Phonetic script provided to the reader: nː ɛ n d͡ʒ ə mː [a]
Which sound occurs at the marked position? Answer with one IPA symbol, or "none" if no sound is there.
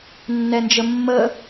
ə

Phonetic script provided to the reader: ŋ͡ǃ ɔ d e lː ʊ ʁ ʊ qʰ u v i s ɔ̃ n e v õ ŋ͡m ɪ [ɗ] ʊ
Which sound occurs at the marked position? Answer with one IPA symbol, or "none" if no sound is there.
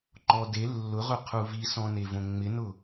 n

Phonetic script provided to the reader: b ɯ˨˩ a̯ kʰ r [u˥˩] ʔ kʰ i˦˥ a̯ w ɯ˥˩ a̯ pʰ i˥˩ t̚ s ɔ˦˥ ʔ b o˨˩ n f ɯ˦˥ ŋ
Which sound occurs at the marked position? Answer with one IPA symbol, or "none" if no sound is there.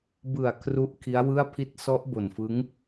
u˦˥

